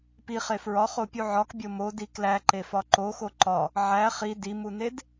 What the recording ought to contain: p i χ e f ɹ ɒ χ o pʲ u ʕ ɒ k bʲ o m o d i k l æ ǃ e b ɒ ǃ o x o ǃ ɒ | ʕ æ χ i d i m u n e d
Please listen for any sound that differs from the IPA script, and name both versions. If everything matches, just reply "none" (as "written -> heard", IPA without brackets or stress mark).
b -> f